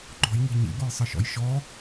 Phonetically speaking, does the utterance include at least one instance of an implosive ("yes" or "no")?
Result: no